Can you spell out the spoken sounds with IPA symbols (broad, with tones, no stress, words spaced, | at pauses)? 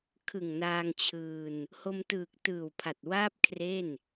kʰɯ˨˩ŋnaː˧ŋt͡ɕʰɯː˧n | ho˧mtɯː˨˩k̚ tɯː˨˩wpʰa˨˩t̚waː˥˩p̚kʰre˥˩n